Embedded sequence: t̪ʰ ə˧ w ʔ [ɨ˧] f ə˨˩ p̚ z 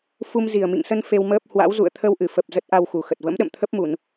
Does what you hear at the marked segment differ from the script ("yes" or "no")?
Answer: yes